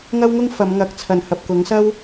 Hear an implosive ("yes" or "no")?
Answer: no